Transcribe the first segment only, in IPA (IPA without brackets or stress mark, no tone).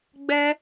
ɡ͡b